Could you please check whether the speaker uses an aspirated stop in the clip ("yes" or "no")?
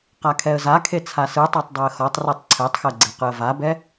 yes